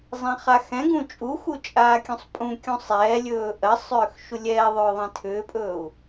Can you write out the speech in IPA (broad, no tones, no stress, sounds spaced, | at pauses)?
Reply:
zˤ ɛ̃ χ a x ɛ̃ ɡ ũ t͡ʃʼ u x u t͡ʃʼ aː kʲ ũ sˤ pʼ ũ kʲ ũ sˤ ɛː lʲ ɵː ʔ ɜ sˤ ʏː x ʃ u lʲ ɛː ðˤ ʏː ðˤ ɛ̃ tʰ ʏː pʼ ɵː u̯